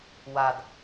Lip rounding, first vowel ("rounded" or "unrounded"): unrounded